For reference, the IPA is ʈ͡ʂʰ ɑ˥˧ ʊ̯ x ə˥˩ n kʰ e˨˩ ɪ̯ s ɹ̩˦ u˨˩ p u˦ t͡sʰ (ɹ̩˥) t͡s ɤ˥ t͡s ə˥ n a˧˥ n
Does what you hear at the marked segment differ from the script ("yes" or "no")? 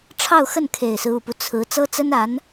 yes